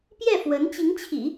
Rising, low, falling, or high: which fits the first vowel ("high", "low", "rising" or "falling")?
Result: falling